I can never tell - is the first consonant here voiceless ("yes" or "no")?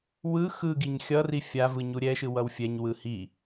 no